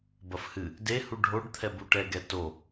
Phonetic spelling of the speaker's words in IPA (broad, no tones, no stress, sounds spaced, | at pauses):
b ɐ f h ɨ | d e h u ɖʱ o ɖ t̪ʰ ɛ b u ʈ ɛ ɡ ɛ t o